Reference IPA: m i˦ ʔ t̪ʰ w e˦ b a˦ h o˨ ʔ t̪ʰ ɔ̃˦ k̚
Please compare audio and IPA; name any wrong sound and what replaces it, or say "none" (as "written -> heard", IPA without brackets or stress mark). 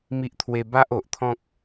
h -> ʔ